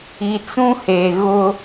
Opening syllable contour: low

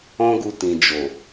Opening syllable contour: high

